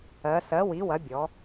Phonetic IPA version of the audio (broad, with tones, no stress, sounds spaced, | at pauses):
ɜ˩˧ s ɜ˩˥ w i˩˥ w ɐ˩˥ bʲ ɔ˩˧